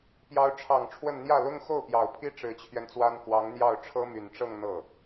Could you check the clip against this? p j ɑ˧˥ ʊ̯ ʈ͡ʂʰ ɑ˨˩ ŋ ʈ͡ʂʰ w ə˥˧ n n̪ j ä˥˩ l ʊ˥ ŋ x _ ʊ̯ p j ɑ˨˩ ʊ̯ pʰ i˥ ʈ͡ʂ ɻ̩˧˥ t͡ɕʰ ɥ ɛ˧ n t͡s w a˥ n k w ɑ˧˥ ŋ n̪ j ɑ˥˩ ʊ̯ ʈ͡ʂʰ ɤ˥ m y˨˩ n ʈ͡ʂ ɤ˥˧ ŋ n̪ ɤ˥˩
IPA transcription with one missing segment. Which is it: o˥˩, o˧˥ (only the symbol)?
o˥˩